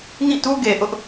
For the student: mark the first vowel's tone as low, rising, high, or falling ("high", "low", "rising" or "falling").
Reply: falling